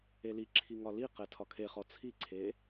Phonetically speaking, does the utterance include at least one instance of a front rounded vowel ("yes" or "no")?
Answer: no